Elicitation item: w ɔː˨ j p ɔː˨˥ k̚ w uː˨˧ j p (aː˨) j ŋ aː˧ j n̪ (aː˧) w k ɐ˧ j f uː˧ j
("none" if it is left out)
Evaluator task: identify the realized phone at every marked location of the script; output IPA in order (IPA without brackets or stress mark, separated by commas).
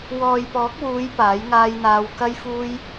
aː˨˥, aː˧